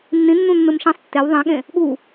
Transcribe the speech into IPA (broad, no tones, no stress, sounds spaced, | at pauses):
nː ĩ nː ũ nː ɯ m ʃ ĩ sˤ tː e w ðˤ ẽ ɠ ẽ | ɠ u